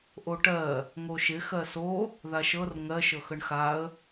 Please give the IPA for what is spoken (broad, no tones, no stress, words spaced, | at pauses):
ʔoʈɜ | ŋoʃɪ xɜso | ðaʃɤr ŋɜ ʃɤxəɳxaə̯